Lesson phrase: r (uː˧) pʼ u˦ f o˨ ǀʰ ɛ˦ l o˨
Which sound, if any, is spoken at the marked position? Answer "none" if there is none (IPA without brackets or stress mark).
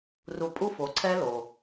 u˧